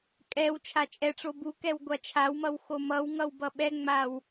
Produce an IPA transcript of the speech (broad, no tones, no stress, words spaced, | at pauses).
kʼɛw t͡ʃʰat͡ʃʼɛʈ͡ʂo bukɛw ɡʷat͡ʃʰawmʌw xomʌwŋʌw bʌɓɛŋ͡maw